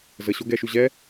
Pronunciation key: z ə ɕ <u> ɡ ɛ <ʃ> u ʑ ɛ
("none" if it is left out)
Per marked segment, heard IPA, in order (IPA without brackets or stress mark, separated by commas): o, ʃ